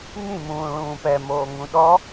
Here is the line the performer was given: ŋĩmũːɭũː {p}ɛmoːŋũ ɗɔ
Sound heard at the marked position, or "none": p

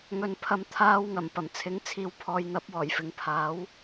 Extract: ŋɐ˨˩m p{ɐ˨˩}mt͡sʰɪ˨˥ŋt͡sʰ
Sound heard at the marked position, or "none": ɐ˨˩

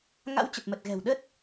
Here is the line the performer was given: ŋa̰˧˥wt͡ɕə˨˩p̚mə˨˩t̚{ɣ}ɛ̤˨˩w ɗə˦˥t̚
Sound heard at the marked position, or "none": ɣ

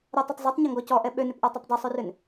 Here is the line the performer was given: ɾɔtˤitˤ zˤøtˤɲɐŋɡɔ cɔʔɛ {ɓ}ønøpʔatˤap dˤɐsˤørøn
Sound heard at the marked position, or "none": ɓ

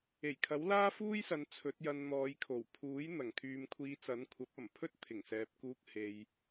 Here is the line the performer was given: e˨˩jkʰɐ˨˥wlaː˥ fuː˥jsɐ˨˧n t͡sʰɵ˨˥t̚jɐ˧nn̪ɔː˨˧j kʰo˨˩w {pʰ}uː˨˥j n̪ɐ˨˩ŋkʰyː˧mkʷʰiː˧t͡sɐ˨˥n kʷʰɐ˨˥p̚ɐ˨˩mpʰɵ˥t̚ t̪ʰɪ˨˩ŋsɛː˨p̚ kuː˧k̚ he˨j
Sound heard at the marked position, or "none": pʰ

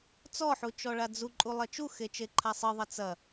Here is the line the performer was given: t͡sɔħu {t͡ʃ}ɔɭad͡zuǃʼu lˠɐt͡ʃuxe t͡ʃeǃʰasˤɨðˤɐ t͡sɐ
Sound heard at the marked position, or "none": t͡ʃ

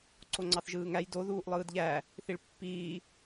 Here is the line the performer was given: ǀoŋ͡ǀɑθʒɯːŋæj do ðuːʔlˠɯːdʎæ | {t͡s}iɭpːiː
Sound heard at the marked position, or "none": θ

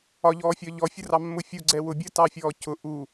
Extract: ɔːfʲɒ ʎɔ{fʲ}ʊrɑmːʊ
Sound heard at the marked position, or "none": fʲ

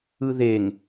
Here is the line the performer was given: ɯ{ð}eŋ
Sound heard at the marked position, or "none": ð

